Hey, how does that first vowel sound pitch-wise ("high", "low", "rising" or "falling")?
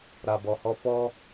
low